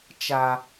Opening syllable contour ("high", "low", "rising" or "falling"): high